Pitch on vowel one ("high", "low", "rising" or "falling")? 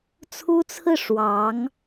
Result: high